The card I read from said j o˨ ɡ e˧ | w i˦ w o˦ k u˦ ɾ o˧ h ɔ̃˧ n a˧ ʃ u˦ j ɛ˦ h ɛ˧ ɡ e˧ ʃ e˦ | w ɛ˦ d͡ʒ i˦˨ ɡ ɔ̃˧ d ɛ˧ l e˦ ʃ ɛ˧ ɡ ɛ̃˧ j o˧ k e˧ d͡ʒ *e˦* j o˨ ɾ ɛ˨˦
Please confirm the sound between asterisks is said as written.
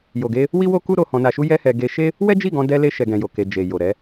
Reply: no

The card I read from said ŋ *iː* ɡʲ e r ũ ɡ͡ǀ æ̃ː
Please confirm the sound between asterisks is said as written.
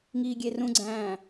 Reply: yes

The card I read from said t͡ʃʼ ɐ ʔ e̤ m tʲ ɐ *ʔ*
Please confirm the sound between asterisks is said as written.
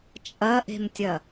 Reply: no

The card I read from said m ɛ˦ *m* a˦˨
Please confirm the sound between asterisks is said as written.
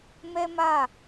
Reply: yes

